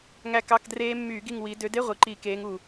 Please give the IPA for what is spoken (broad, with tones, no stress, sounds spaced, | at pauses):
ŋ æ˦˨ k ɑ˧˥˧ k d r eː˦˥ mː yː˧˩˧ ɡ i˦˨ ŋ w i˨˦ d ø˨˦ d e˧˥˧ ʁʷ i˨˩ ǃ i˧˩˧ k eː˨˦ ŋ u˨˩